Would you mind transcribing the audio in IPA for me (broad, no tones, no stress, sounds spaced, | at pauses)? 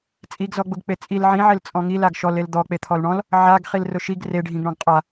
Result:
t͡sʼ i ɡ z ɔ ɡ͡b ʊ ɡ k͡p e t͡sʼ i l ʕ ĩ ʕ e l t͡sʼ ɔ̃ ŋ i l a ɡ ʃ ɔ l e l d̪ ɔ k͡p e t̪ʰ ɔ l ɳ ɔ̃ l | ʕ a ɡ χ i l r ʊ ʃ i ɡ r e ɖʱ ĩ ɡ ɳ ɔ̃ ɡ qʼ a